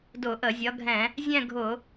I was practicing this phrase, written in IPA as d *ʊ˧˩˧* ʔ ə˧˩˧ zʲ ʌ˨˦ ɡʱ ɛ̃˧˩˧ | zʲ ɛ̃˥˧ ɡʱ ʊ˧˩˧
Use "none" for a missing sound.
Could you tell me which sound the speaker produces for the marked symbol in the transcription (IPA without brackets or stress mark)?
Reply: ʊ˧˩˧